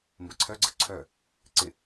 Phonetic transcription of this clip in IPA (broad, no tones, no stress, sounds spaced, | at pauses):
m b ə ǀʰ œ ɡ͡ǀ ə ǀʰ œ | ǀ ɪ